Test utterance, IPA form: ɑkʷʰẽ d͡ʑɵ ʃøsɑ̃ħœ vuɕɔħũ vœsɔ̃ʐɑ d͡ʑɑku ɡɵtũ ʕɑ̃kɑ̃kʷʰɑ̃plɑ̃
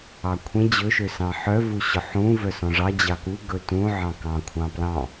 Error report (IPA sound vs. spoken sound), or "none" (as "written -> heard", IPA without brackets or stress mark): none